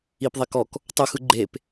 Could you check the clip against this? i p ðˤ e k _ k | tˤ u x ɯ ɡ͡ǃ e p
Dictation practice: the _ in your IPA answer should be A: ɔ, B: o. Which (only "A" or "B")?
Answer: A